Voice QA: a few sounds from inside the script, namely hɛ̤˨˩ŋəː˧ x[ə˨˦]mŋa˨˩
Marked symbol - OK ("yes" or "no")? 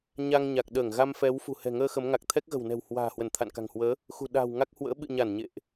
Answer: yes